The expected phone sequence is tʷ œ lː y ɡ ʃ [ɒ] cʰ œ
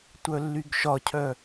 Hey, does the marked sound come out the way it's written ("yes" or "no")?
yes